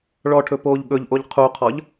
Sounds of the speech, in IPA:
ɭɔʈʰɵ poːʎɠɵʎʔoʎ qʰuqʰɔʎ

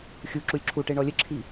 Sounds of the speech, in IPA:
xʲu ǁulʲǁʰuʈe ɳɔlʲəǁʰi

